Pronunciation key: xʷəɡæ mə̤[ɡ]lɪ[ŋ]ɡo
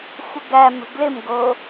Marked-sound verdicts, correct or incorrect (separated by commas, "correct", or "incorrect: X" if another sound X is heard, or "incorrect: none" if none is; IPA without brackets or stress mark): correct, incorrect: m